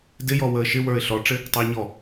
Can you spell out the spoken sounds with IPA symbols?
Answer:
d ɪ j ɔ w əː ʃ ɪ w ə˞ ɪ̯ ɬ ɔ ʈ͡ʂ ɪ | tˤ əː ɲ ɔ

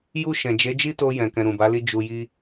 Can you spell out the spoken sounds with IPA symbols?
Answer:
j u˧ ʃ ɛ̃˨ d͡ʒ e˨˦ d͡ʒ i˦ t o˧ j ɛ̃˨ k ɛ̃˨ ɾ ũ˨ b a˨˦ l i˧ d͡ʒ u˨ j i˧

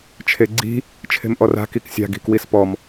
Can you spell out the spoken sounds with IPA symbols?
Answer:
t͡ʃʰ e ɡ͡ǀ i̤ | t͡ʃʰ e̤ m ʔ ɔ r a̤ k i k sʲ a̤ ɡ i̤ k w i s p ɔ m

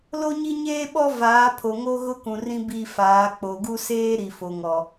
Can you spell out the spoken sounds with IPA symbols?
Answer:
l o˦ ɲ i˦ ɲ eː˦ ɓ ɔ˦ v aː˨˦ pʰ o˨ ŋ o˦ ɣ ʊ˦ k ũ˨ r ĩ˦ b i˦˨ f aː˨˦ k͡p o˨ ɡ u˦ s eː˦ ɾ i˨ f o˨ ŋ ɔ˨

